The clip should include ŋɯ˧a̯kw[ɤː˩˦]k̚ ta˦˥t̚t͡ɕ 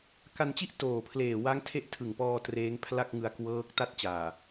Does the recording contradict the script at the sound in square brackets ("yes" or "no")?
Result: yes